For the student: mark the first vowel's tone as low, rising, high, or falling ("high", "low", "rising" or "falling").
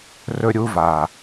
high